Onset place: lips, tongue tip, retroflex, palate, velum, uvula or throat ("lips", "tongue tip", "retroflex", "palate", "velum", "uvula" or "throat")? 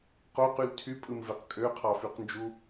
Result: uvula